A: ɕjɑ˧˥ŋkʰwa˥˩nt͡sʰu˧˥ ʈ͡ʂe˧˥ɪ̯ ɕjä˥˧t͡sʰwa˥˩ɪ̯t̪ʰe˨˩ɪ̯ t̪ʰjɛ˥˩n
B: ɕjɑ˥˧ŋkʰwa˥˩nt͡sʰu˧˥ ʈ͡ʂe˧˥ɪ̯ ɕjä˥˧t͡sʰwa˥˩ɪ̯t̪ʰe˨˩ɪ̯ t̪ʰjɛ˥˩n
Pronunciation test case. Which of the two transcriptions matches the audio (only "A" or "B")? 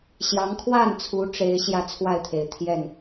A